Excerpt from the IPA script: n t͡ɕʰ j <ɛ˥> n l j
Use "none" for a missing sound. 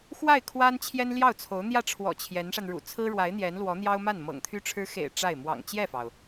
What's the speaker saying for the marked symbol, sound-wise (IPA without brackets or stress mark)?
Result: ɛ˥